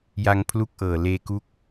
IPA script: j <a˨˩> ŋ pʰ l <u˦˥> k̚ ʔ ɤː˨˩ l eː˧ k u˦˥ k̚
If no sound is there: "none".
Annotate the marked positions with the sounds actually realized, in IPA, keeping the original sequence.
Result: a˧, u˥˩

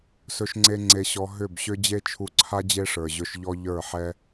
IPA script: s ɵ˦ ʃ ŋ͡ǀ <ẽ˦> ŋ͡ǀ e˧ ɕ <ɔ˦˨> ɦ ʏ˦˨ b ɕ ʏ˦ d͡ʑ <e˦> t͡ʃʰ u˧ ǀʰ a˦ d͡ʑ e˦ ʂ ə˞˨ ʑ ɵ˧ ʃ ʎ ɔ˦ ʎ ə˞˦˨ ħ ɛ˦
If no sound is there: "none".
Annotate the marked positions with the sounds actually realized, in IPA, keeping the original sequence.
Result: e˦, ɔ˧, e˦

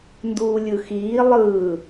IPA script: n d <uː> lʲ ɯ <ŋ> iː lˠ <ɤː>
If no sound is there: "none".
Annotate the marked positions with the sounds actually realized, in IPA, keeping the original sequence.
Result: uː, x, ɯː

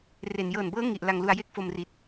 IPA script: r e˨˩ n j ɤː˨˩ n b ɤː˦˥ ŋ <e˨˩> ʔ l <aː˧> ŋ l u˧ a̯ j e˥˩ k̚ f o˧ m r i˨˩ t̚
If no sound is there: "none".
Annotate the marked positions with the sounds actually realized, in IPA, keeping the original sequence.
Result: i˨˩, a˧

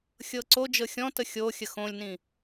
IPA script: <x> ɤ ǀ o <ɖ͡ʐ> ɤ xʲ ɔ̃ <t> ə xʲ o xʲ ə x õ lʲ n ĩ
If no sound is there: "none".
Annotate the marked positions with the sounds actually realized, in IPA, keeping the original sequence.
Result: xʲ, d͡ʒ, t

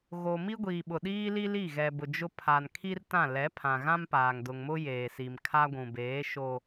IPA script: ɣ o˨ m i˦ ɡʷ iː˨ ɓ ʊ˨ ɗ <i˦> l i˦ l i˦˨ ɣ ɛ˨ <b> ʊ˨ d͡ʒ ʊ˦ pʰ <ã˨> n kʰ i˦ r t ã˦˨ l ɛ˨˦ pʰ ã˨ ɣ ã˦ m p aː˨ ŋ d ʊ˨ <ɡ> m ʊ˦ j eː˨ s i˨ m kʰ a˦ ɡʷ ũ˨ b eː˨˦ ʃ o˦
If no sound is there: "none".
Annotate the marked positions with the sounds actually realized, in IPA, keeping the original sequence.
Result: iː˦, b, a˨, ŋ

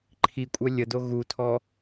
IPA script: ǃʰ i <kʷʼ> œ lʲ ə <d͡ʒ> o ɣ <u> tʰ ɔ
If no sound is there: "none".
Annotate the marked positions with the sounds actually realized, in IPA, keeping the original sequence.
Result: kʷʼ, d, u

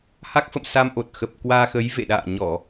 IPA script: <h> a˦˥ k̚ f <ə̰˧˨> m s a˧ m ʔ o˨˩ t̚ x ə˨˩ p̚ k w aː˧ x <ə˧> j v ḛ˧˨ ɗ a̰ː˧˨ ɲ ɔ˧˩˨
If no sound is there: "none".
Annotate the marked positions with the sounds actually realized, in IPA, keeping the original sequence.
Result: h, ə̰˧˨, ə˨˦

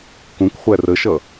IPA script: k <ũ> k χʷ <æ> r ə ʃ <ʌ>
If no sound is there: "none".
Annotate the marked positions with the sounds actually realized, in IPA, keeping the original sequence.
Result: ũ, æ, ʌ

